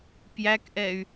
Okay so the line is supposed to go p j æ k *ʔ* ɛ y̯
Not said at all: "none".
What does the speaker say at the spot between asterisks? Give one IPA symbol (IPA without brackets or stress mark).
ʔ